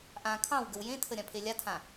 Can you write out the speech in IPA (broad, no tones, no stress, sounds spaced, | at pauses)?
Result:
ʔ ã kʰ ɑ̃ w ɡ ə w j ẽ tʰ ə ɾʲ ã pʰ e lʲ a tʰ ã